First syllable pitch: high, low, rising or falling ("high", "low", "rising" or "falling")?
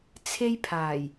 high